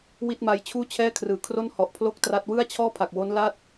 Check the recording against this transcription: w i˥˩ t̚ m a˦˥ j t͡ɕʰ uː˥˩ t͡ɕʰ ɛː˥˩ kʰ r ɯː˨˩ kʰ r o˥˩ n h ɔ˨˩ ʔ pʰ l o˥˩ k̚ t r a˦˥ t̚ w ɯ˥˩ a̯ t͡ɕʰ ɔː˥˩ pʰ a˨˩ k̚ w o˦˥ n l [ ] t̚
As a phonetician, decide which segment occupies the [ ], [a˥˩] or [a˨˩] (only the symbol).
a˥˩